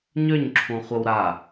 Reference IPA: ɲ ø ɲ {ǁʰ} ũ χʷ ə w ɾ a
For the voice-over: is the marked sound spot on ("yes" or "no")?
yes